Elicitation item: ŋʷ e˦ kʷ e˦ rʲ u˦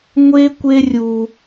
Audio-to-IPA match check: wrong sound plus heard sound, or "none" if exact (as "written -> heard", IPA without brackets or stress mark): none